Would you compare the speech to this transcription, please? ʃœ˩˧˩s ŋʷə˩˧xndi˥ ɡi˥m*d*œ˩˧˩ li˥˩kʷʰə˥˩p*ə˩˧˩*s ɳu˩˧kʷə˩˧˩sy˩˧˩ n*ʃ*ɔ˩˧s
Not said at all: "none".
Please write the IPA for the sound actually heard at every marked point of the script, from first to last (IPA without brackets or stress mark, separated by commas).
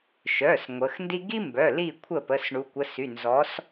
b, ə˩˧˩, z